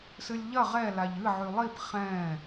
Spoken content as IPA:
sɨlʲʎɐ ʁɛ laʎɨ ʕylˠip χɛ̃

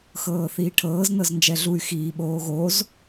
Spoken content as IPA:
xɤːθiːʈʰɤːz nɤznd͡ʒɛɮuy̯ xiːɓoːɣoz

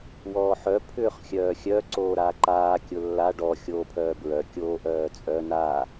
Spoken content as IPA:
wɔːħœ pʰʏːχxʲœːxʲœ ǀoːɾaːǃaː kʲʊlːa ɖɔ xʲoːpʰœːbɹœ kʲoːʔœːt͡sʼœ naː

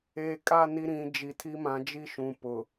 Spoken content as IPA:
eː˨kʼa˦˨ ni˦ɾĩ˨˦d͡ʒi˨˦tʰi˦ mã˨˦d͡ʒi˦ʃũ˨ pʊ˨

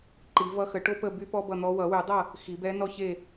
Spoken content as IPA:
ǃi˨˩˦vʌ˧˥ xə˨˩˦ʈo˥pə˥˨ by˥pɔ˥bʌ˥˨n̪ɔ˧˥ wʌ˨˩˦wy˨˩˦dˤʌ˥˨ | xi˨˩˦bɛ˧˥nɔ˥˨çe˥˨

